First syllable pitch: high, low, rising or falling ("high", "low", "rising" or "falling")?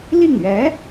falling